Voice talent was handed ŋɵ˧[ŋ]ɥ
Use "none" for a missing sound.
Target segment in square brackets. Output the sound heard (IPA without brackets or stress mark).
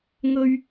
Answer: none